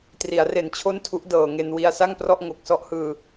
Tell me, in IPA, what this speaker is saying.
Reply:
t r i˩˦ a̯ r e˨˩ n t͡ɕʰ o˥˩ n tʰ u˦˥ ʔ d ɤː˨˩ ŋ e˧ n w i˧ a̯ s a˥˩ ŋ p r ɔ˥˩ ʔ ŋ o˨˩ k̚ s ɔ˦˥ ʔ h ɯː˧

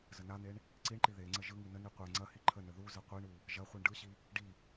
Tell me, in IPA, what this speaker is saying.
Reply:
z ə n a n̪ e ɳ | ǀ i ɳ ǃ i ð e ŋ͡ǀ ə ʒ ɯ ŋ i n ə n i qʷ e ŋ͡ǀ ɐ h i ǃʰ ə n ə ð u z ə qʷ i ɳ u | ʒ ɐ χʷ ɯ ɳ ɖ ɯ ɕ i | ɖ i

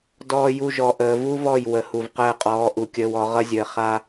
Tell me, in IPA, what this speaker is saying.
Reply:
d ɔː˨ j u˨ ʒ ɔ˨ ʔ əː˨ v u˦ v ɔ˦˨ j w ə˨˦ h u˨ v q əː˦˨ qʼ ɔː˨˦ ʔ u˨ kʲ əː˦ w ɔ˨˦ ʁ ʌ˦ zʲ əː˨ χ a˦

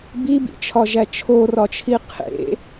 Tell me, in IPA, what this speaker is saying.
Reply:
b i b ḭ t͡ʃʰ ɒ ʒ æ t͡ʃʰ o r ɒ t͡ʃʰ i qʰ ḛ

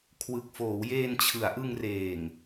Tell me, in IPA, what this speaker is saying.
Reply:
kʰ w ɯ˨˩ k̚ f oː˩˦ w j eː˧ n t͡ɕʰ ɯ˩˦ a̯ ʔ ɯ˧ ŋ r eː˨˩ ŋ

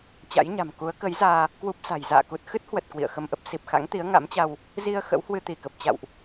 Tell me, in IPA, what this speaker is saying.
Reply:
t͡ɕ a̰˧˥ j ɲ a̤˨˩ m k u˨˦ ə̯ k ə˨˦ j z aː˧ | k w u˦˥ p̚ s a̤˨˩ j z a̰ː˧˨ k u˨˩ t̚ x ɨ˦˥ t̚ h w ə˨˩ t̚ k w ḭ˧˨ ə̯ x ə˧ m ʔ ə˦˥ p̚ s i˨˩ p̚ x a̰˧˥ ŋ t̪ i˨˦ ə̯ ŋ a̰˧˥ m t͡ɕ a˧ w | z i˧ ə̯ x ə̰˧˥ w h w ɨ˧ t̪ i˧˩ k ə˨˩ p̚ t͡ɕ a̰˧˨ w ʔ

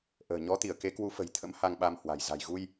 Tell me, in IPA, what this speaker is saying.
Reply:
ʔ ə̤ː˨˩ ɲ ɔ˨˦ t̪ i˧˩ ə̯ k e˨˦ k w u˨˦ f ə̤˨˩ j t̪ʰ ə̰˧˥ m h a˧ ŋ ɓ a˧ m h w a̤˨˩ j z a̤˨˩ j ɣ u˧ j

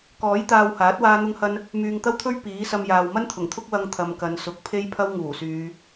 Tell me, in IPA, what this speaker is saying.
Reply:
k ɔː˨˥ j t̪ aː˧ w h aː˨˥ t̚ w aː˥ n̪ ʊ˥ ŋ h ɐ˥ n | m yː˨ ŋ t̪ ɐ˥ w t̪ʰ ɵ˥ ɥ p iː˨˥ s ɐ˧ m j aː˨ w m ɐ˥ n t̪ʰ ʊ˨˩ ŋ t̪ʰ ʊ˥ k̚ w ɐ˧ ŋ t̪ʰ ɐ˨ m k ɐ˨ n s ʊ˨ k̚ pʰ e˥ j pʰ ɐ˥ w ŋ uː˨˩ s yː˨˧

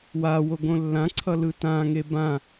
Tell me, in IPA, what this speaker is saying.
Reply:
w a w o ɡ õ lː ã ǀʰ ʌ l ɯ t ã ŋ e b ã

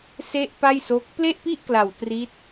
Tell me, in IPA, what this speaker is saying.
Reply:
s e˥˩ ʔ p a˥˩ j s o˦˥ k̚ p l e˥˩ ʔ p i˥˩ ʔ k l a˨˩ w t r i˦˥ t̚

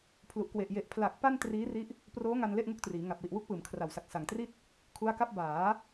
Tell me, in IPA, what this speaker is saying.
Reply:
pʰ l u˨˩ ʔ k w e˨˩ ʔ j e˨˩ ʔ pʰ l a˨˩ k̚ p a˥˩ n t r iː˦˥ r i˦˥ ʔ | p r oː˦˥ ŋ a˧ n l e˥˩ ʔ ŋ u˥˩ k̚ t r iː˩˦ ŋ a˨˩ p̚ w i˨˩ ʔ w u˥˩ k̚ p ɯː˩˦ m kʰ r a˨˩ w s a˨˩ k̚ s a˨˩ ŋ t r i˥˩ t̚ | kʰ u˦˥ a̯ k a˥˩ p̚ b aː˩˦

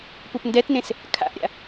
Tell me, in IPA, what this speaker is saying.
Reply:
p u p n d ɛ t n ẽ s | kʰ a̰ ʔ ɾʲ a̰

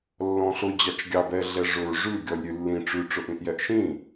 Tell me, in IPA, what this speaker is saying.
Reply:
lː ɔ̃ ɬ ʊ d͡ʑ ɑ t͡ʃ ɡʲ ɑ b ɛ ɮ ɛ ʐ ʊ ɹ ʐ ʉ ɡʲ ɔ lʲ ɾʲ ʉ lː ĩ ʈ͡ʂ ʉ ʈ͡ʂ ʊ ʔ ĩ ʔ j ɛ ʔ ʃ ĩ

